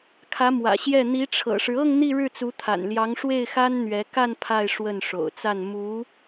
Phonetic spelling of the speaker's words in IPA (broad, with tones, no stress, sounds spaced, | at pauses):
kʰ ä˧˥ m w ä̰˨˩ ɕ j ɛ˥˩ n̪ i˧˥ ʈ͡ʂʰ ɤ̰˨˩ ʂ ɻ̩˦ ɤ˥˧ ŋ n̪ i˥˧ ɻ ɻ̩˥˩ t͡s u˧˥ t̪ʰ a̰˨˩ n l j ɑ˧˥ ŋ ʂ w e˥˩ ɪ̯ x a˥ n n̪ ɥ ɛ˧˥ k a˥˧ n pʰ a˥˧ ɪ̯ ʂ w ə˥˩ n ʂ o̰˨˩ ʊ̯ t͡s a˥˩ n m u˧˥